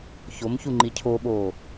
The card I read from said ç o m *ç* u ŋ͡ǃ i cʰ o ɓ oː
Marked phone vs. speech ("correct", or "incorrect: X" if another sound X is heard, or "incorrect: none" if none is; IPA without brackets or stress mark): correct